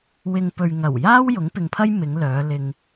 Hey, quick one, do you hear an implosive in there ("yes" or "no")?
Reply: no